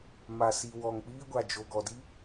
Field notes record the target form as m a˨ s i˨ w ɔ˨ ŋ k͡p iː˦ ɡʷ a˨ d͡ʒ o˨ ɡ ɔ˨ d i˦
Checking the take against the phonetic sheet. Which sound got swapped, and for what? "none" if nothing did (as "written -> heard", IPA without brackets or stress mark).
none